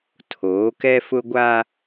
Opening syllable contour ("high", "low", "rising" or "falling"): rising